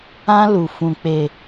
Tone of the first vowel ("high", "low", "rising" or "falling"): high